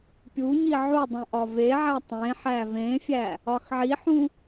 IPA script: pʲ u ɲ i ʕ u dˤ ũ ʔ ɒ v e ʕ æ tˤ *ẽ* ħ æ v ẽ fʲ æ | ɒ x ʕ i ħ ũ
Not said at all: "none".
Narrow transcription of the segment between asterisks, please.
ẽ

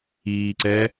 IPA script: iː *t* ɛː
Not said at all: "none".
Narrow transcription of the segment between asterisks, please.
ǀ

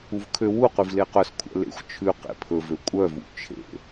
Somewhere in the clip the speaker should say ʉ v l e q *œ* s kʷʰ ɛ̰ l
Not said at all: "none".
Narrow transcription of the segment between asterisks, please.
œ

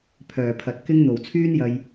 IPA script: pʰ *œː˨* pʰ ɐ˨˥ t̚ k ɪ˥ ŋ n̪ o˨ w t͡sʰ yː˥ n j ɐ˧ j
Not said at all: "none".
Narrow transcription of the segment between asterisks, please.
œː˨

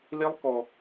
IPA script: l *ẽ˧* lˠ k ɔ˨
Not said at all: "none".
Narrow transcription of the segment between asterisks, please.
e˧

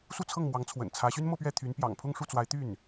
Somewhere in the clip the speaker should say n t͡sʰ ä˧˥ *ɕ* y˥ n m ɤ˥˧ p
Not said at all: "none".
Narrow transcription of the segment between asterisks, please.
ɕ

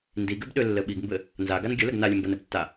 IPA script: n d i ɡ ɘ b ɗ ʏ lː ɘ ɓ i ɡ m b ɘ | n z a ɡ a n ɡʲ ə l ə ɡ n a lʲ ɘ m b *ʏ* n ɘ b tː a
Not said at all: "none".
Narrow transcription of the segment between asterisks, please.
ə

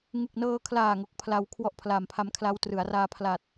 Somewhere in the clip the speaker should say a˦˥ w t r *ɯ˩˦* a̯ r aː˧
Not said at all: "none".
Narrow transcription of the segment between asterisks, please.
ɯ˩˦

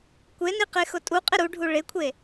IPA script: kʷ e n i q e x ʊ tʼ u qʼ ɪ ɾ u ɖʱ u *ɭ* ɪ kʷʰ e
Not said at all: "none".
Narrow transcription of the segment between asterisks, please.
ɭ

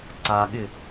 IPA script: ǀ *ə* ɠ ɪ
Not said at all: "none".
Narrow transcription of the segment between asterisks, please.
a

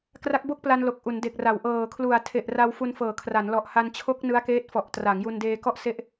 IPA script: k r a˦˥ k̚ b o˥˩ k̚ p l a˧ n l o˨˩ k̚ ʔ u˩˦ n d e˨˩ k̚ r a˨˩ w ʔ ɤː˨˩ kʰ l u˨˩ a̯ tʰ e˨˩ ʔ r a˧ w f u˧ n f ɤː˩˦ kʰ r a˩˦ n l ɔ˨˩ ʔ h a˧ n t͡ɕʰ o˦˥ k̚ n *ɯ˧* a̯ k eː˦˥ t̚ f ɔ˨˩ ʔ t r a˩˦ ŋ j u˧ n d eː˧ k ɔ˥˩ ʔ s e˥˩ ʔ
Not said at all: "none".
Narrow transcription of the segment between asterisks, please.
ɯ˦˥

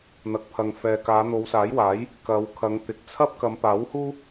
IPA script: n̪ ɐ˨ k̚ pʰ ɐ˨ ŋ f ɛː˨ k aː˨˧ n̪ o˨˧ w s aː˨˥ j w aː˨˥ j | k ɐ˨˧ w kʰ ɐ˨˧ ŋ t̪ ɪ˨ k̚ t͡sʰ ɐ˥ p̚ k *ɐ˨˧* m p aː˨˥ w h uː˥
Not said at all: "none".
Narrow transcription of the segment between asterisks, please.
ɐ˨˧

